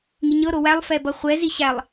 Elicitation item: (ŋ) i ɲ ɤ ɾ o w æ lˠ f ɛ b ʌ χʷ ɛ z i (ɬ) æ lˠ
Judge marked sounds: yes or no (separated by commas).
yes, no